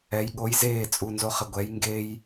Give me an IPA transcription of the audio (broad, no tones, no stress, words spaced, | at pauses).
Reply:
ɛj ɠoj zeː t͡sʼunzoχɪ ɡʷɛj ŋɡej